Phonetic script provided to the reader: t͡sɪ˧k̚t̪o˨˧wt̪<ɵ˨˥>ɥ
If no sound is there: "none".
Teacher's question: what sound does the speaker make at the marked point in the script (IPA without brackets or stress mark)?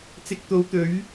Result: ɵ˨˥